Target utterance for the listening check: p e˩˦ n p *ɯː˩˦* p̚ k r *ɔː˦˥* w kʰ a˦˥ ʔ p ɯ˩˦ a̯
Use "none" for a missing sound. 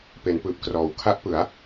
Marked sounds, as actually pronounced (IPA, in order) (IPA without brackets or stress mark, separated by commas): ɯː˨˩, ɔː˩˦